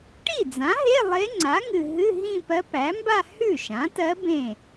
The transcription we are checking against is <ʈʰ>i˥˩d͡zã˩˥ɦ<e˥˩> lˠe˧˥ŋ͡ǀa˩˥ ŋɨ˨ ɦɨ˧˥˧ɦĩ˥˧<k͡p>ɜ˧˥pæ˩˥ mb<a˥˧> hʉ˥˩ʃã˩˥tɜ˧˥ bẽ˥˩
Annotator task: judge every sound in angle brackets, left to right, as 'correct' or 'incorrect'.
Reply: incorrect: ʈ, incorrect: e˧˥˧, incorrect: p, correct

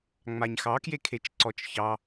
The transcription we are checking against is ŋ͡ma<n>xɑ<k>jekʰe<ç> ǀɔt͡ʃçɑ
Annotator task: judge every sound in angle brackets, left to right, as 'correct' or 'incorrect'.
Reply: incorrect: ɲ, correct, incorrect: t͡ʃ

